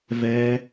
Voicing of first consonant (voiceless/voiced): voiced